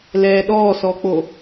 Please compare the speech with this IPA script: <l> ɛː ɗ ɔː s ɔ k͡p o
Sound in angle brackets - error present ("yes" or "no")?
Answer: no